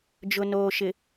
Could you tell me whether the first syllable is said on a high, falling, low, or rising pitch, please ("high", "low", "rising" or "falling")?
low